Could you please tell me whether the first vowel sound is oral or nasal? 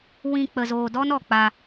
nasal